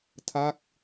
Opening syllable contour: falling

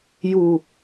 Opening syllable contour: low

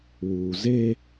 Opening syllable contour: low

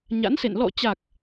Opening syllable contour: rising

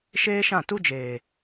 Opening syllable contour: high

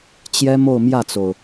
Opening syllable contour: high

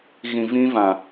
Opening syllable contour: low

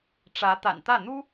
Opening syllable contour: rising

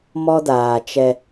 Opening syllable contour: high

